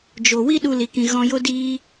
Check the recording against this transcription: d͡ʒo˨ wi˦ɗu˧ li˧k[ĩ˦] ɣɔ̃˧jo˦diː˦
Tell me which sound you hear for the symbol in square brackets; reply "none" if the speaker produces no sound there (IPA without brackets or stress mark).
ĩ˧